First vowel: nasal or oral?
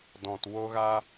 nasal